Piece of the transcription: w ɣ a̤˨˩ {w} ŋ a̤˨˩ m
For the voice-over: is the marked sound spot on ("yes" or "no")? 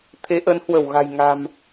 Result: no